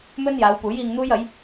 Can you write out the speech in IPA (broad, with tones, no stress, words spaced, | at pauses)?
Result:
mɵ˥njaː˨˧wpuː˨˥j iː˧ŋ n̪uː˥jɐ˨˥j